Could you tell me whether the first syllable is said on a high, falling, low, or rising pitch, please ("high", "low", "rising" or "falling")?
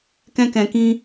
high